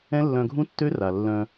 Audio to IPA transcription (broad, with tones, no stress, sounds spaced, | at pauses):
ɛ̃˦ lː œ̃˧ ɡʱ ũ˦ tː ø˦ r a˨ lː œ̃˧